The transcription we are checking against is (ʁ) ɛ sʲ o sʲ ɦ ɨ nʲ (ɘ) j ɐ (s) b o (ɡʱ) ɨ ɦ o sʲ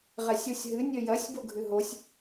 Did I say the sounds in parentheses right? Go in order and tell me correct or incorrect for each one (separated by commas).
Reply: correct, correct, incorrect, correct